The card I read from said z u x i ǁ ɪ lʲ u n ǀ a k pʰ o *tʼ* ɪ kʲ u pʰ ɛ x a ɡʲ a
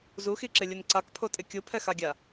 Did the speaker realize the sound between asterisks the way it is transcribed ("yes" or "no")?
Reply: yes